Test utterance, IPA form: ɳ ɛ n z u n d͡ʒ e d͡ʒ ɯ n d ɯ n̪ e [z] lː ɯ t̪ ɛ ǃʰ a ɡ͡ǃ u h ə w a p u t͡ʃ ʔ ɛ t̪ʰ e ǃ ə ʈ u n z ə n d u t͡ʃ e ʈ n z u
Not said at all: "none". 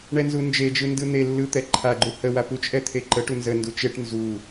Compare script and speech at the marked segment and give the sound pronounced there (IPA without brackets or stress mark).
none